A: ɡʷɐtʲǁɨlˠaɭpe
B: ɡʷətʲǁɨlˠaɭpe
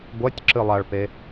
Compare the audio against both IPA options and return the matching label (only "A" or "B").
A